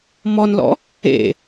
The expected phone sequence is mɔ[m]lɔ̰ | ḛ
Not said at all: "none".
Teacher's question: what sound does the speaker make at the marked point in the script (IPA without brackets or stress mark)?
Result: n